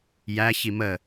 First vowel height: low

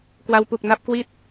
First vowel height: low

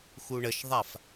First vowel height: high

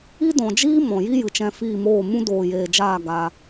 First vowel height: high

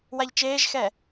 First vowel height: low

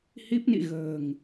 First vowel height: high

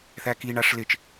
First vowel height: low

